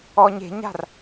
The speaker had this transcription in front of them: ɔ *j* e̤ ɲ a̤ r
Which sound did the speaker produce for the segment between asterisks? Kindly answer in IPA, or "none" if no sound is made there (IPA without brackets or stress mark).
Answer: ɲ